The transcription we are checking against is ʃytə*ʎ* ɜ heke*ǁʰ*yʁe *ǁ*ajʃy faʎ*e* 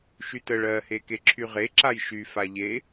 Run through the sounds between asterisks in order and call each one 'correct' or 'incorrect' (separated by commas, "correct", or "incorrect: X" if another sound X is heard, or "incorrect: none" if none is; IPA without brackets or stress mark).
incorrect: ɭ, correct, correct, correct